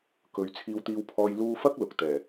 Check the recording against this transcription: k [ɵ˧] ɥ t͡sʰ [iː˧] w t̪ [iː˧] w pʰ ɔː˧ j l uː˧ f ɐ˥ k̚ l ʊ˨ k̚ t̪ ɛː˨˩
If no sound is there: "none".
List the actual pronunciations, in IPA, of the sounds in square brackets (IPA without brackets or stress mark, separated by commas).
ɵ˨, iː˧, iː˧